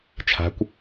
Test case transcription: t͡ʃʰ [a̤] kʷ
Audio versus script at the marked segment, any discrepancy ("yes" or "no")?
no